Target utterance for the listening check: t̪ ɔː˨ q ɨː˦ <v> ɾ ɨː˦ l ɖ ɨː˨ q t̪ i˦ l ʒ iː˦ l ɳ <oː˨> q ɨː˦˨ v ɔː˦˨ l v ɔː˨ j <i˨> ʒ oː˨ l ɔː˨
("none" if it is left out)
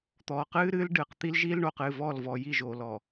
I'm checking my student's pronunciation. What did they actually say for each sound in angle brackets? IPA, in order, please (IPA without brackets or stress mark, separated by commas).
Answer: none, oː˨, i˦˨